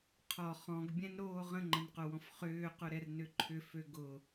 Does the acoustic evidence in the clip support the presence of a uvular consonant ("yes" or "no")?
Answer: yes